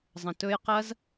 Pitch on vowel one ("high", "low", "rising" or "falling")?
low